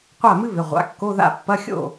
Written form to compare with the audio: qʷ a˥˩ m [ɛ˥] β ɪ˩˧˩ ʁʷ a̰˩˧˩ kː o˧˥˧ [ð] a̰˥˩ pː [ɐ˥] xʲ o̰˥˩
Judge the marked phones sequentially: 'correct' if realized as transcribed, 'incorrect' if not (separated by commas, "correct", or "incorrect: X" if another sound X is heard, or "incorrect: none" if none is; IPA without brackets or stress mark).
incorrect: ɨ˥, correct, incorrect: ɐ˧˥˧